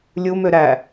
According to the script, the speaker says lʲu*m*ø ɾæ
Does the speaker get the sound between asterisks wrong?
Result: no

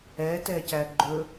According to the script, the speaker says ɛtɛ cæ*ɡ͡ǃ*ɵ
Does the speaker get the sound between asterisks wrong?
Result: no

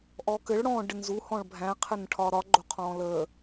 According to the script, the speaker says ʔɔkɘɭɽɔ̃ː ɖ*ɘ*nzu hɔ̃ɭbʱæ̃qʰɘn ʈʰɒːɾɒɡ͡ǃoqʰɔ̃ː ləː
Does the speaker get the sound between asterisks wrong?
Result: no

